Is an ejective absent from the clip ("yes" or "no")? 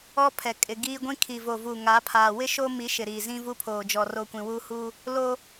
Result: no